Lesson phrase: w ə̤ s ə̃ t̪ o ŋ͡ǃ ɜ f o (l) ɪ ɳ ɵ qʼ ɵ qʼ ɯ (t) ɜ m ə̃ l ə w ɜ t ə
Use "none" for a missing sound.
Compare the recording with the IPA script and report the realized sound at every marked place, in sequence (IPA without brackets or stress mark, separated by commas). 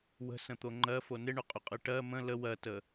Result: n, ʈ